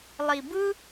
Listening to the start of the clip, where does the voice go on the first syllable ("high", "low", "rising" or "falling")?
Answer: low